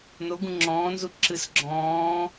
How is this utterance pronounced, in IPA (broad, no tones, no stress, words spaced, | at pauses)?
noɡũ ŋ͡ǁɔ̃ːnzu ǁɨs ɡ͡ǁɔ̃ː